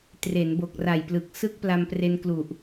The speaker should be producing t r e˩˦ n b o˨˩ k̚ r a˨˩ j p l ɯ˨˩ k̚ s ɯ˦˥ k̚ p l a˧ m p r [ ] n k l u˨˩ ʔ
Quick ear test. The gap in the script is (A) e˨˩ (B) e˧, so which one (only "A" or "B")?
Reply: B